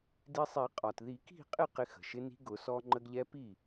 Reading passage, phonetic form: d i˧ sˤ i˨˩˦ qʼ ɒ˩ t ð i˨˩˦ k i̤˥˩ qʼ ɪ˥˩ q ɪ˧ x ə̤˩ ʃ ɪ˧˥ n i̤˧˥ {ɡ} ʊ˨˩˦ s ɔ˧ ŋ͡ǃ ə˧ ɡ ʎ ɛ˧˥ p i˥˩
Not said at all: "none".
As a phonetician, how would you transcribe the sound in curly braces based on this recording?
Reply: ɡ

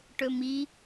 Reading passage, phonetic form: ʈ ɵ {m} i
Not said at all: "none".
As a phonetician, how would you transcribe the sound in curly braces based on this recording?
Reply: m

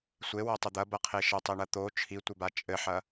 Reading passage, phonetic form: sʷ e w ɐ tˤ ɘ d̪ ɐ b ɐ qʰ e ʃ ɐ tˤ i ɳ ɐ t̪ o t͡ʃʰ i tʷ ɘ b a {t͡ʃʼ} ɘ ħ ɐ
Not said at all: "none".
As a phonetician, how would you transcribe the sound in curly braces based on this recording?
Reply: t͡ʃʼ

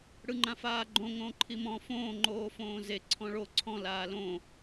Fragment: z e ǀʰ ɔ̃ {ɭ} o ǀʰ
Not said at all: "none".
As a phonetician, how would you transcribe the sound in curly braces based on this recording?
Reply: ɭ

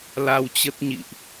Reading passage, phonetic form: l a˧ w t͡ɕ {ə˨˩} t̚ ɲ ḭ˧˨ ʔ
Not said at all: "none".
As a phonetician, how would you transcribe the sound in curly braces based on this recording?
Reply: ə˦˥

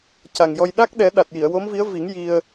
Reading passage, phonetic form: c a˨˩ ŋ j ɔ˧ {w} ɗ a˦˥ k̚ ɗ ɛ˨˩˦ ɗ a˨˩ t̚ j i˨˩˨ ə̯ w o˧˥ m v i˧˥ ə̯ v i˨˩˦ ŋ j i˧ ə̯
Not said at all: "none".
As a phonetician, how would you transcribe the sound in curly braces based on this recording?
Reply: j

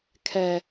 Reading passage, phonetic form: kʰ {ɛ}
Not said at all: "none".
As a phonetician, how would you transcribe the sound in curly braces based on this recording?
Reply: ɛ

